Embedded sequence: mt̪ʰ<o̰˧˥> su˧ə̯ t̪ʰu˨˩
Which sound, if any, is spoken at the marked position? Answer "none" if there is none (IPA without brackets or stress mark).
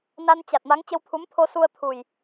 o˧